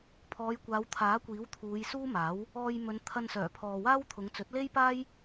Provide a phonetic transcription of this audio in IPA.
pʰɔː˨˧jkʷaː˨˧w t̪ʰaː˨˥kʷiː˨˥wt̪ʰuː˨˧j suː˥maː˨˥w | ɔː˧jmɵ˨˧n t̪ʰɐ˧nsœː˨˩pʰɔː˨waː˥w t̪ʰʊ˨˧ŋt͡sɵ˨˥t̚le˥jpaː˥j

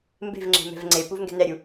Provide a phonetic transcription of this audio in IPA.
mbe̤v ŋ͡ǁe̤mɛ̤vŋ͡ǀepuv ŋɡɛ̤nɛɾʲu

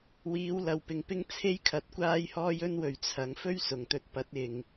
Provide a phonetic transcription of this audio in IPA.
wiː˨˧wlɐ˨wpɪ˨ŋpɪ˥ŋ t͡sʰe˥jkʰɐ˨˥t̚ kʷaː˥jhɔː˥j ɵ˥nwɵ˨˧ɥ t͡sʰɐ˨˧ŋ fɵ˥ɥsʊ˨˩ŋt̪ɵ˧t̚pɐ˨˥t̚ ɪ˨ŋ

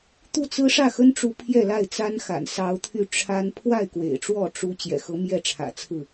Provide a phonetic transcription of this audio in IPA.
t̪u˥˩t͡sɹ̩˥ ʂä˥˩xə˥nʈ͡ʂu˧˥ pʰjɛ˥˧la˥˩ɪ̯t͡sa˥n xa̰˨˩nsɑ˧˥ʊ̯t̪ʰy˥˩ ʈ͡ʂʰa˥n pʰwa˥˩ɪ̯ kwḛ˨˩ɪ̯ʈ͡ʂwɔ˥˩ ʈ͡ʂu˧˥ t͡ɕjɛ̰˨˩xɤ˧˥mjɛ˥˩ʈ͡ʂʰä̰˨˩ t͡sʰɹ̩˥˩

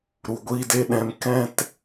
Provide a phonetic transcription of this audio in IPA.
ɾu˨ɡʷiː˦de˦ ɗɛ̃˧m kɛ̃˦t

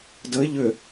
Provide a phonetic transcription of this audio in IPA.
dəɪ̯ ʎʏ

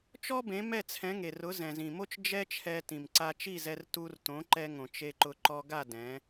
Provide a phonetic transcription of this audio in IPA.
t͡ʃɔ˥bẽ˩˥ mɛ˥˩t͡sʰɛ̃˩˥ŋe˩rʊ˩˥ zɛ̃˩zĩ˩mo˥t͡ʃ d͡ʒɛ˥t͡ʃʰɛ˧tĩ˩m ǀa˧t͡ʃi˥˩zɛ˧r tu˧rtõ˩˥ǃɛ˧ŋõ˩ t͡ʃe˧ǃʊ˧ ǃɔ˧ɡa˥˩ dɛ̃˩˥

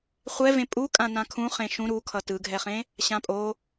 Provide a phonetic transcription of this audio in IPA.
χʷɛvẽ pʼukʼã nãkʰũ χẽʃũ ɾukʰʌ tɯɡʱɛχẽ | ɕãpʼo

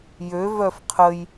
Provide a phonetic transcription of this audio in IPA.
jø vœfqʰəj

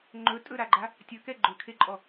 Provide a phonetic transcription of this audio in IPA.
ŋ͡ǃɵtʼɵɾaɡ͡ǃa | tʲɵkɛ ɡ͡ǃɵkʰeǃʼɔ

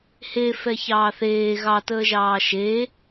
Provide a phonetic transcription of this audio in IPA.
hefɛçɑː θeː ɣɑtəːʒɑː ʃe

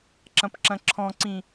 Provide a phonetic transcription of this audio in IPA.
ǁɐ̃pǁɐ̃ǁʰɔ̃ǀĩ

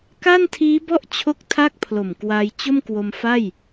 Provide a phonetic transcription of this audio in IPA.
ka˥˩ntʰiː˦˥bɔ˥˩ʔ t͡ɕʰo˥˩k̚tʰa˥˩k̚pʰlo˨˩m kwa˧jt͡ɕo˥˩mkwo˧mfa˥˩j

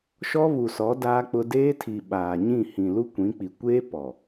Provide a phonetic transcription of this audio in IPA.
ʃɔ˦βu˨sɔ˨˦ daː˦k͡pʊ˦ deː˦tʰi˨ ɓaː˨ɲĩ˦˨ hĩ˨lu˦kʷĩ˨˦k͡pi˨ kʷeː˦ pɔ˨

